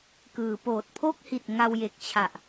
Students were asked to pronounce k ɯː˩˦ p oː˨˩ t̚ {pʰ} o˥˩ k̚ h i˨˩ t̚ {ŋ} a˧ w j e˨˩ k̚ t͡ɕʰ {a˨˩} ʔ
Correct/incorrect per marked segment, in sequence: correct, correct, correct

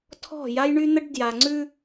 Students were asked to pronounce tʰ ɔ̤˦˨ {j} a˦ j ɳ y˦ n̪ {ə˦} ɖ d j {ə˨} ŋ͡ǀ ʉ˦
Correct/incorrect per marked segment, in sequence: correct, correct, incorrect: a˨

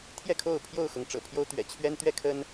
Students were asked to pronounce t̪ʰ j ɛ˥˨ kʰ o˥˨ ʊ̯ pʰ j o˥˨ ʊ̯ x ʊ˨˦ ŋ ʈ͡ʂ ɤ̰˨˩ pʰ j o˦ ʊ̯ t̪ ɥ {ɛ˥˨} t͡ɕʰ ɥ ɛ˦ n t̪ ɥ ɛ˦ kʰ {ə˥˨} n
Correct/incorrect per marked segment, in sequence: incorrect: ɛ̰˨˩, incorrect: ə˦

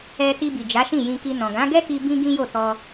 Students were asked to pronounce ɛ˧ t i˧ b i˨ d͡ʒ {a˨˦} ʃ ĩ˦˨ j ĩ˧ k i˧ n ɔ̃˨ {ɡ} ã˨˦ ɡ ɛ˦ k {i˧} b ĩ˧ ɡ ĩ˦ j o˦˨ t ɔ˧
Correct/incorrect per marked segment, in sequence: correct, correct, correct

